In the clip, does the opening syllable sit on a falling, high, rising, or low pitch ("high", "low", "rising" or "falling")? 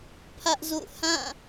high